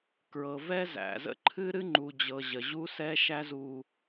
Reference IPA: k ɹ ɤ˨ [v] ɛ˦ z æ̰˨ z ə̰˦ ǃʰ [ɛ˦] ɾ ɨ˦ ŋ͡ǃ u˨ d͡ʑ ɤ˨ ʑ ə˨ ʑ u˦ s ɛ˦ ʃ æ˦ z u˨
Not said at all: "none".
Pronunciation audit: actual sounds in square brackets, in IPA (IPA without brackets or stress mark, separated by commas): v, ɨ˦